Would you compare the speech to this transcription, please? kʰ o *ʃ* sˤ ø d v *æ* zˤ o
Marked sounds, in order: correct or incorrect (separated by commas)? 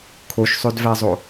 correct, correct